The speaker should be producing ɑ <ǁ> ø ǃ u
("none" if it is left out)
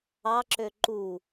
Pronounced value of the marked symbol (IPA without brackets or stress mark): ǁ